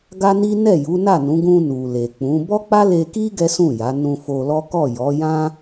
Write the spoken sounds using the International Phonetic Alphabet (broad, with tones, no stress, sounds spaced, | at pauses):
ɡ a˦ n i˦ n ɛ˦˨ j u˨˦ n a˦˨ n ũ˨˦ ɡ ũ˧ n u˨ l e˨ k͡p ũ˨˦ b ɔ˦ k͡p a˦ l e˧ k i˦ ɡ ɛ˦ s ũ˦˨ j a˨˦ n ũ˧ f o˧ l ɔ˦ k ɔ˦˨ j ɔ˨˦ j ã˦